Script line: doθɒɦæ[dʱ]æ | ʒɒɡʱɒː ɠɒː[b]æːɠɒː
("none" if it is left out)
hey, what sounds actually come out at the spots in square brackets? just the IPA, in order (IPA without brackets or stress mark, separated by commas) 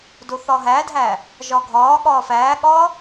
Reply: dʱ, f